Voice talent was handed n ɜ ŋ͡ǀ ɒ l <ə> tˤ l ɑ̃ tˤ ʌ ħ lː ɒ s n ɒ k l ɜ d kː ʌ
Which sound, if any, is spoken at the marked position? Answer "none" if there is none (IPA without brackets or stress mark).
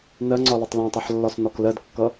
ə